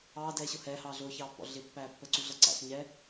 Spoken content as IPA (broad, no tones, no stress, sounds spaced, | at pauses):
ɑː d ɛː ɕ ʊ h ɛː h ɑː ɮ ʊː ç ɑː pː ɔ̰ ɮ ɪ pː æː pː ə ǀ u ɮ ʌ ǀ æ̰ ɬ ɲ ɛ